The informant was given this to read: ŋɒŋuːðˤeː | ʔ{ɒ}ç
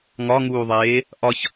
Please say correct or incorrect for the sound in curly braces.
correct